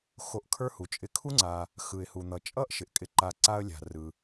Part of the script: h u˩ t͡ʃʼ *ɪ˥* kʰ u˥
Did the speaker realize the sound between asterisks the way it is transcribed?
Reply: no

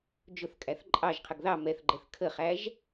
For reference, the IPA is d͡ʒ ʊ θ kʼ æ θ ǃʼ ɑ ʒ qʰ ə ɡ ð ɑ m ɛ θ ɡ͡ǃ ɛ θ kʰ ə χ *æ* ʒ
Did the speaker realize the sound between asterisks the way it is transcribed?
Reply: yes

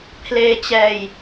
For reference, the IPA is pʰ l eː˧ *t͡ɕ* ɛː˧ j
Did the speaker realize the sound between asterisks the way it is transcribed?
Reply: yes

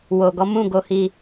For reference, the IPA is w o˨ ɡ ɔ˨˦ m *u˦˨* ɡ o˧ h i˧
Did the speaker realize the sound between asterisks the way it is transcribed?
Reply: no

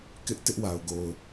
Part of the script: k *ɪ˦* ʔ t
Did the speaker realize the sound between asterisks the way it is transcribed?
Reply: yes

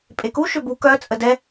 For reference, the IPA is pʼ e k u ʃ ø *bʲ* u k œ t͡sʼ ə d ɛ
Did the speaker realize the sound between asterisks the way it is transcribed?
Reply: no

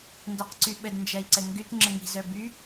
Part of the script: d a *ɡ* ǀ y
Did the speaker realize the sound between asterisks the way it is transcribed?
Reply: no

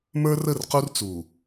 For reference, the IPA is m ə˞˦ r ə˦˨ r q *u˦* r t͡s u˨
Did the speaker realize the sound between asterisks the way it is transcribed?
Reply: yes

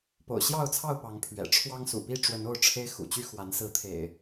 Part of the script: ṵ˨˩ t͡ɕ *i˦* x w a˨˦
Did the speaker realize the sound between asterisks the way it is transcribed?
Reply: no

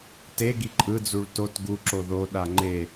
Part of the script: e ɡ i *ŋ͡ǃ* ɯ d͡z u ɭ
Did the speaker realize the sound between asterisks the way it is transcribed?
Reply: no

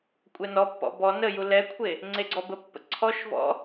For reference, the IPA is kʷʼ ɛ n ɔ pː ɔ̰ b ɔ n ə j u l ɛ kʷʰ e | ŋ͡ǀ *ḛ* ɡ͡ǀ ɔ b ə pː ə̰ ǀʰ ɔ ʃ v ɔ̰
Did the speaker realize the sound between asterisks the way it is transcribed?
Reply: no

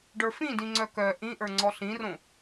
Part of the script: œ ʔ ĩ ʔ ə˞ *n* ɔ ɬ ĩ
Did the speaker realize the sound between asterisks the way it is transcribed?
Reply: no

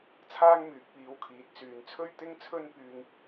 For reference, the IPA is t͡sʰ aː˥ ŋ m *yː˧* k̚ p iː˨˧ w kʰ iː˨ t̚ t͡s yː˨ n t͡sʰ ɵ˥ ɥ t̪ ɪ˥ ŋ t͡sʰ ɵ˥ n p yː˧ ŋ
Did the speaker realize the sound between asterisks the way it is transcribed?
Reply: no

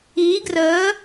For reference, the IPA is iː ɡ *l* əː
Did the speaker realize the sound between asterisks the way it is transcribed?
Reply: no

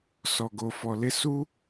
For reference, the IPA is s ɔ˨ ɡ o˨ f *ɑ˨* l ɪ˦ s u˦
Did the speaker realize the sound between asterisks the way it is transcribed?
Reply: no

